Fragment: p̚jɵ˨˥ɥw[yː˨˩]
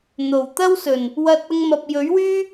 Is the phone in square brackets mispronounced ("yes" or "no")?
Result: yes